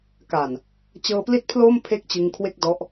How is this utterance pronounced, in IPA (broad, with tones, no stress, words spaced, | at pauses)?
ka˨˩n | t͡ɕɤː˧pli˥˩t̚pʰloː˥˩m pʰe˥˩k̚t͡ɕɯ˧ŋkʰwe˥˩k̚ dɔ˦˥ʔ